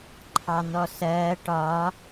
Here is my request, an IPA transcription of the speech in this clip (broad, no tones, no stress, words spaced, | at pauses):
ǃʰɑn̪ɔsɜː ʈɒ